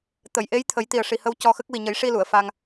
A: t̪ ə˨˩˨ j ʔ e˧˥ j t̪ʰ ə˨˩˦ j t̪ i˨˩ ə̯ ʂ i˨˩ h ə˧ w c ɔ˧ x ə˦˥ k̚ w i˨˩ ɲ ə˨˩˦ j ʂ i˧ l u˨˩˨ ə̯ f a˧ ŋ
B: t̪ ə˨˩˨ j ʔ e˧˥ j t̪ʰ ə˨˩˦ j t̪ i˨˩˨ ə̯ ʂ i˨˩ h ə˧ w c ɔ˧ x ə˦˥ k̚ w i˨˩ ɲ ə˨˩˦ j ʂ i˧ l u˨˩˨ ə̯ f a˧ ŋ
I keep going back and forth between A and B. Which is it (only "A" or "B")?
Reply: A